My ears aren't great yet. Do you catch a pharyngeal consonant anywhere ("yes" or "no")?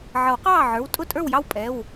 yes